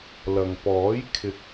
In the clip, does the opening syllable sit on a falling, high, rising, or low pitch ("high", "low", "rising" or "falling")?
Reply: low